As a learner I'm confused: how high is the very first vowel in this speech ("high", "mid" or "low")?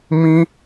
high